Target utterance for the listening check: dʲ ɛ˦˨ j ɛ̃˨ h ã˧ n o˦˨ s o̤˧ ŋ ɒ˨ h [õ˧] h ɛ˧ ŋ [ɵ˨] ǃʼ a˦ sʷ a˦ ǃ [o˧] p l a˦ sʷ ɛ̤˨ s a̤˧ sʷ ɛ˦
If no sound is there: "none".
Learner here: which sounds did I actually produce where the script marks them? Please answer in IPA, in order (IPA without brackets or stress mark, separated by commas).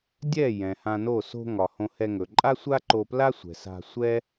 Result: õ˧, ɵ˨, o˧